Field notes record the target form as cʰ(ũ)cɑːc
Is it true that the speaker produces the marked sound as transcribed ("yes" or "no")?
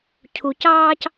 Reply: no